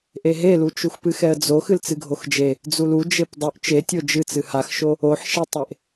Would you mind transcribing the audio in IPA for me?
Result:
ʔ e ɦ e l u t͡ʃ u x p ɨ x ɛ ə̯ d͡z o x ɨ l t͡s ɨ ɡʱ o x d͡ʒ e | d͡z u l u d͡ʒ e p dˤ u ʔ t͡ʃ e tʲ o d͡ʒ ɨ t͡s ɨ h a x ʃ o | o ħ ʃ ɛ tˤ e ʔ

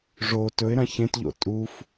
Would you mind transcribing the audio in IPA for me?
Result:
ʐ o t ɵ ɪ̯ ɾ ã ç ẽ t ʎ o̰ tʼ u f

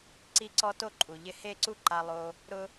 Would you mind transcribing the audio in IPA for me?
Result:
ǀ i˧ ǀ ɔ˧ t o˦ ǃʼ u˨ ʎ ɪ˧ h e˦˨ ǀ u˦ ǃ a˧ lˠ o˧ | ɾ ʊ˦

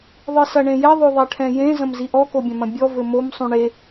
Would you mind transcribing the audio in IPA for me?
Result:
ðˤ ɨ s ɐ ɳ ẽ j ɛ ðˤ o ðˤ ɛ ʈʰ ɛ̃ j ẽ z ɐ̃ m z i ʔ ɔ k o bʲ ɐ̃ m ɐ̃ bʲ ɔ v ɘ m o m sˤ ũ ɳ e

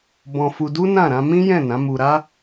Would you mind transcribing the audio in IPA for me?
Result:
b ɔ̃˧ f u˧ d u˦ n ã˦˨ ɾ ã˧ m ĩ˦ j ɛ̃˦˨ n ã˨˦ m u˧ ɾ a˦

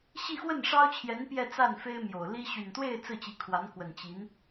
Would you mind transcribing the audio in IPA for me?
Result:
ɕ i˥˧ x w ə˥˩ n ʂ ɑ˥ ʊ̯ t͡ɕʰ j ɛ˧˥ n p j ɛ˥˧ t͡s a˥˩ n f e˥ ɪ̯ m j o˨˩ ʊ̯ l i˥ ɕ y˨˩ n t̪ w e˥˧ ɪ̯ t͡s ɹ̩˥˩ t͡ɕ i˧˥ kʰ w a˧˥ n k w ə˨˩ n t͡ɕ i˧˥ n

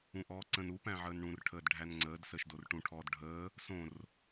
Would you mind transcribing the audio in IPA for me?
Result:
ũ ʔ ɔː ǀ ə̃ n u p æ̃ ʕ əː n ɳ ũ r ʈʰ əː d ɖʱ æ n ŋ͡ǀ əː d s əː ʃ d o r ʈ ũ ʈʰ ɔː d ɖʱ əː | s õ r

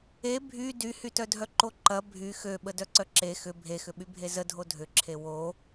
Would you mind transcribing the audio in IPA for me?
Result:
e bʱ y d y h y t œ dʱ œ ǃ o ǃ ɐ bʱ y x ø ɓ ə d œ ǀ œ ǁ e x ʏ bʱ e x ʏ ɓ y bʱ e z ə dʱ o dʱ ʏ ǁʰ e w o

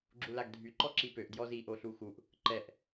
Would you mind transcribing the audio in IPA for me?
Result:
ɡ͡ǁ u l a ɡ dʱ y ǃ ɔ ǁ i p ø ʔ d j ɔ z i ʔ o ɬ u x u ʔ | ǃ ɛ ʔ

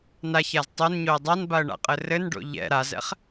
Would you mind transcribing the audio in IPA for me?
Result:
n a ç a z tˤ o n ɲ o ə̯ dˤ a n b a ə̯ ɳ a̰ qʼ ɘ r ɘ n ɖ o̰ ʎ ɛ̰ ɾ a z ɛ̰ χ

